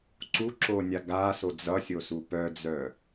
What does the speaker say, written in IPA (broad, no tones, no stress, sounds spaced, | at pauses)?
ǀ u ǁ o nʲ a ɡ a s o d͡z ʌ sʲ o s u p œ d͡z œ